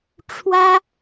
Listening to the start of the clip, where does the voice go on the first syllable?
high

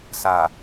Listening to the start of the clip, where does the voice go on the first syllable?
low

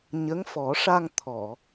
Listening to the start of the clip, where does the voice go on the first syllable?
rising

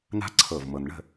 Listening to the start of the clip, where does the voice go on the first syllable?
high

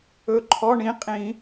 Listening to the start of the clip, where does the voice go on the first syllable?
rising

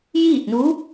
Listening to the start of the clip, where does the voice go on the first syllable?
falling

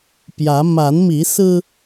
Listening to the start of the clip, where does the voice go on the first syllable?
rising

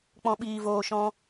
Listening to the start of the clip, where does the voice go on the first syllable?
low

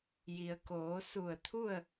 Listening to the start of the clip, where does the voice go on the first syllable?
low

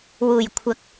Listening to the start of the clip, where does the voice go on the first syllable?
low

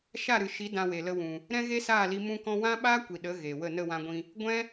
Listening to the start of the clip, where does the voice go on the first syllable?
falling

